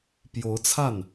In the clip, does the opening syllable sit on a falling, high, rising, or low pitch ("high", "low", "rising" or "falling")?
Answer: rising